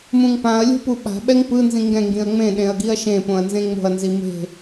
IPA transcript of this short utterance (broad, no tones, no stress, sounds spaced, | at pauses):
m ũ ŋ p ã ɐ̯ lʲ o̤ p u ɓ a̤ ɓ ɛ ŋ p ɯ n z ĩ ŋ ɡ ɛ̃ ŋ ɡ ĩ ɐ̯ ŋ͡m ẽ ɗ ẽ ɐ̯ ɡ i ɐ̯ ʃ ẽ p õ ɐ̯ n z ẽ ŋ͡m o̤ ɐ̯ n z i m e̤